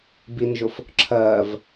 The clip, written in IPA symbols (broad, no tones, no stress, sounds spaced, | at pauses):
b i n ʒ ʊ f | ǁʰ ɜː v